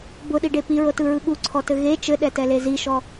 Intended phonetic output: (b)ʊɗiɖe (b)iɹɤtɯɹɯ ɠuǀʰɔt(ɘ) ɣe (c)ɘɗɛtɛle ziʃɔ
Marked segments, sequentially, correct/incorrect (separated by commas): correct, incorrect, correct, incorrect